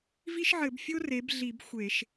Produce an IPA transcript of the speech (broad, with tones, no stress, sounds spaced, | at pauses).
v i˥ ʃ ʕ ɘ˧˩˧ b fʲ o˥ r e˩˥ b ɮ i˧˩˧ b xʷ e˧˩˧ ʃ